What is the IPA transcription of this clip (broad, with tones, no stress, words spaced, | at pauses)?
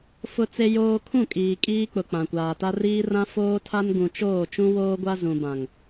fʊ˦t͡se˦joː˦ kʰũ˦˨kʼiː˨ kʼiː˦k͡pʊ˨ k͡pã˨kʷaː˨ta˦ riː˦rã˦ foː˦tʰa˦nɡũ˨t͡ʃoː˦˨ t͡ʃũ˦woː˦ɡʷa˦ zũ˨bã˨ŋ